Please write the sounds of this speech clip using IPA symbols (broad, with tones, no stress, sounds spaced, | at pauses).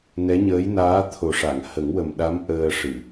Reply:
n ɛ˧˥ ɲ əː˧˥ j n aː˧˥ t̪ʰ o˨˩ ʂ a˨˩˨ ŋ h ə˨˩˦ ŋ w ə˨˩ m ɗ a˧˥ m ʔ əː˧ ʂ ɨ˨˩˨